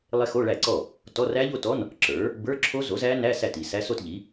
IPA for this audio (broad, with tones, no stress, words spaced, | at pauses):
lˠe˦˥xo˧˥˧ɭæ˥˩ǀɔ˥˩ | tɔ˧˥˧ræ˦˥ʎo˥˧tɔ˧˥˧n | ǁə˞˩˥ | bə˞˧˥˧ǁʰo˦˥ zo˩˥zæ˦˥ næ˧˥˧sæ˥˩ti˥˩ sæ˦˥so˥˧tʎi˩˥